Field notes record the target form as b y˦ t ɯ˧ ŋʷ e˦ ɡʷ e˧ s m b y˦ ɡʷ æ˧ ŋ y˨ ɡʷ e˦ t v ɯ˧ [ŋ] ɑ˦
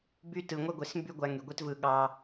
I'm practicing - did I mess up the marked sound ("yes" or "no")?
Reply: yes